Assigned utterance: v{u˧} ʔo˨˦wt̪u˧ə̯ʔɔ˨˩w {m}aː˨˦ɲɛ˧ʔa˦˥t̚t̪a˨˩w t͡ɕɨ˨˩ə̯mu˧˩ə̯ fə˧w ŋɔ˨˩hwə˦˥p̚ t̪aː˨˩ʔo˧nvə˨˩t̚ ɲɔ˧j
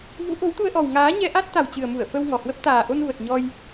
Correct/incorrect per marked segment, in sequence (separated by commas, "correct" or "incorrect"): incorrect, incorrect